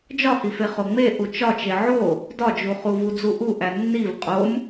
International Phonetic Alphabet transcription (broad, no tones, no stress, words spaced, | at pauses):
d͡ʒɒhife χoŋ͡me ʔut͡ʃɒt͡ʃe ʕo | dɒd͡ʒuχu vud͡zuʔuʔæ nːiv qʼom